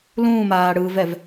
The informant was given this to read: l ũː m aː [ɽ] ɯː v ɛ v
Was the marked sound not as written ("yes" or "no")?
no